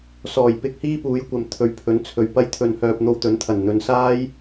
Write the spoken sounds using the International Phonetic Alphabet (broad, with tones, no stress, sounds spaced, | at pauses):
s ɔː˨˩ j p ɪ˧ k̚ h iː˥ p uː˨˥ j kʷ ɐ˨ m t̪ʰ ɵ˨˧ ɥ pʰ ɵ˨˥ n t͡sʰ ɵ˨ ɥ p ɐ˧ j t̪ʰ ɵ˨ n h œː˨ p̚ n̪ o˧ w t̪ ɵ˨˥ n t̪ʰ ɐ˨˩ n n̪ ɵ˨˧ n s aː˥ j